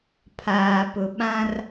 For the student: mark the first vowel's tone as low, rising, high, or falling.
low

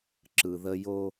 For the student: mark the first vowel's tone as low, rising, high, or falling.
low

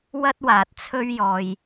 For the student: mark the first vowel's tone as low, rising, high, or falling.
high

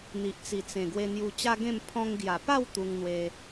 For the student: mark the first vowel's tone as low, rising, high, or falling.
low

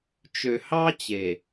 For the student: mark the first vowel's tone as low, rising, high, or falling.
low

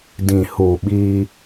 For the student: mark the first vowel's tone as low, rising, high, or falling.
low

